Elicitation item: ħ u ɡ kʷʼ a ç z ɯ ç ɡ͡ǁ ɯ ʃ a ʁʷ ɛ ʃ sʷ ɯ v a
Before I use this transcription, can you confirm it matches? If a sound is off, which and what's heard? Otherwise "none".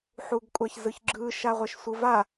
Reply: none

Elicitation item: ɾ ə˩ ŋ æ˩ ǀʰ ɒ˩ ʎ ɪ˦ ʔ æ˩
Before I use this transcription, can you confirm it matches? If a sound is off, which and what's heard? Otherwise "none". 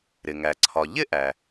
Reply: ə˩ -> ɪ˩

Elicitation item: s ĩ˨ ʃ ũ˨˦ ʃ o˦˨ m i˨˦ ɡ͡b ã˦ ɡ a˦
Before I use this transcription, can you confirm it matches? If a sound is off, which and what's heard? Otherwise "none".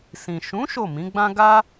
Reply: i˨˦ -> ĩ˨˦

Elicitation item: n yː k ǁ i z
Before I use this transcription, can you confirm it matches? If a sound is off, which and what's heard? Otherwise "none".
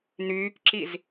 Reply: none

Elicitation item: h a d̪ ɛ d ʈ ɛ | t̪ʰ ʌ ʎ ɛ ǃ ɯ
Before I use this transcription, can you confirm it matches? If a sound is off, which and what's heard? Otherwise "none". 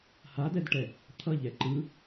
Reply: none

